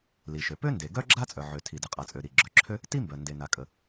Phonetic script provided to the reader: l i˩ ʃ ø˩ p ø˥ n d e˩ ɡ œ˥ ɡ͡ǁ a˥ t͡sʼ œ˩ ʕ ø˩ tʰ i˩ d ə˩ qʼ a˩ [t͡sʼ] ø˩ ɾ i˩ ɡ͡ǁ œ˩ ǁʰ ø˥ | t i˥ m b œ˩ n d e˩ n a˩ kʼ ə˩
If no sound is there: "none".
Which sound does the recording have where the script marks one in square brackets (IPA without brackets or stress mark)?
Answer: t͡sʼ